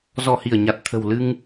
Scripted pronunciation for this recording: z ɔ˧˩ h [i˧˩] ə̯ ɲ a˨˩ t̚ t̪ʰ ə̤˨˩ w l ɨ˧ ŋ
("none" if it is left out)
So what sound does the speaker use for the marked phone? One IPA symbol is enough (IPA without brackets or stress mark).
i˧˩